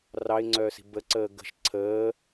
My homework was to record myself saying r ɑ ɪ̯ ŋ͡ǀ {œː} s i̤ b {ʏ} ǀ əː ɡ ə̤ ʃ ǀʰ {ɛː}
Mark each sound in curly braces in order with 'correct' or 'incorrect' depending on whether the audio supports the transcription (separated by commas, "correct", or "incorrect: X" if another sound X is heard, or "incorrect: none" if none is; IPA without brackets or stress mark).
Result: correct, incorrect: ə, incorrect: əː